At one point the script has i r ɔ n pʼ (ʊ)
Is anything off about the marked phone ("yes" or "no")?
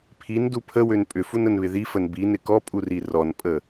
yes